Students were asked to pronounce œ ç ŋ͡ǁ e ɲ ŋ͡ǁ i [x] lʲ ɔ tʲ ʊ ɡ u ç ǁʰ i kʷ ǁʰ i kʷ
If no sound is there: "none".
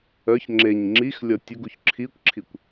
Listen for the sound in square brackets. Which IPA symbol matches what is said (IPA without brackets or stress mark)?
x